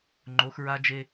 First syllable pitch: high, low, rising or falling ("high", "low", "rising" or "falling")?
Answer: rising